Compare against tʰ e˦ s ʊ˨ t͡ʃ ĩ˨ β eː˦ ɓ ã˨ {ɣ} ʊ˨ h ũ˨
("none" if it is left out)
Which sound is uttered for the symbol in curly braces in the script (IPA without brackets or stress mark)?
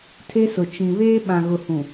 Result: ɣ